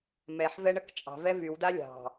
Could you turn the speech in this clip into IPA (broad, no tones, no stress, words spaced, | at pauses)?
mɛħvɛɳək t͡ʃʼɑ̤vɛ vywda lʲɑ̤